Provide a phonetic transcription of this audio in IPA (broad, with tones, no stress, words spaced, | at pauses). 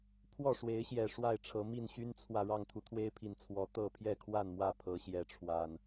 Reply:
pʰwɔ˥˨ʂwe˨˦ɪ̯ɕjɛ˨˩ ʂwa˥˨ɪ̯ʈ͡ʂʰɤ˨˦ mi˥˨nɕy˦nt͡sʰwä˨ ɻɑ˥˨ŋt̪ʰu˨˦t̪ʰwe˦ɪ̯pʰi˨˩n t͡sʰwɔ˨˦ t̪ɤ˥˨ pʰjɛ˥˨kʰwa˥˨nmwä˥˨ pʰɤ˨˦ɕjɛ˨˦ʈ͡ʂʰwa˨˩n